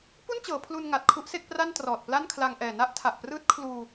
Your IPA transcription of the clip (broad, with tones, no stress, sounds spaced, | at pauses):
p u˥˩ n t͡ɕ ɤː˩˦ pʰ l u˧ n ŋ a˨˩ t̚ kʰ u˦˥ ʔ s e˥˩ k̚ p r a˥˩ n t r ɔː˨˩ t̚ p l a˥˩ n kʰ l a˧ ŋ ʔ ɛː˨˩ n a˥˩ ʔ tʰ a˨˩ ʔ p r ɯː˦˥ t̚ kʰ l uː˧